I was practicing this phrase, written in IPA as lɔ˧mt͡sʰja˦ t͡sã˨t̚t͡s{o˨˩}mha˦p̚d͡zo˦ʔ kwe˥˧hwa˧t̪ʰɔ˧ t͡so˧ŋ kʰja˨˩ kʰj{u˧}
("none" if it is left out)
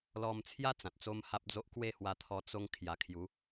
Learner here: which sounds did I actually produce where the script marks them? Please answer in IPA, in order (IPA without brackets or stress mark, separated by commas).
o˦, u˨˦